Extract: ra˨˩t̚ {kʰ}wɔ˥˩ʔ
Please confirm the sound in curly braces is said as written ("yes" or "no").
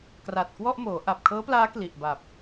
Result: no